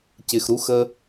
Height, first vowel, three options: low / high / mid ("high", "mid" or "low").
high